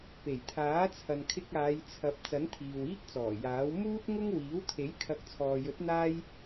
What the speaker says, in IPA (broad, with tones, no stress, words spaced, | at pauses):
pe˨˩jt̪ʰaː˨˥t͡sʰɐ˨n kʰɪ˧k̚aː˨˧jt͡sʰɐ˨˥p̚ t͡sɐ˨˥nt̪ʰiː˨wiː˥k̚t͡sɔː˨˩ jaː˨˥w muː˥t̚ŋʊ˥ŋ wiː˨˥wt̪ʰe˨˥j kʰɐ˨˥k̚t͡sʰɔː˨jɵ˨˥t̚ n̪aː˥j